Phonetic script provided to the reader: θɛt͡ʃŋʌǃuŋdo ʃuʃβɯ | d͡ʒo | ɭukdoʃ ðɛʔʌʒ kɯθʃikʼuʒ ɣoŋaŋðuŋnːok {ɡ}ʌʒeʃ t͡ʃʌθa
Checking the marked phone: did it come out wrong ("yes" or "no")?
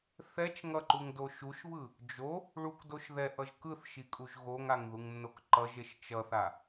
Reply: yes